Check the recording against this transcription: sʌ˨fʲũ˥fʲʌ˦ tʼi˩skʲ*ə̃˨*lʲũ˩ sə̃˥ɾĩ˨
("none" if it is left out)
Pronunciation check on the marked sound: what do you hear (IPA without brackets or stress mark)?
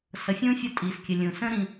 ə˨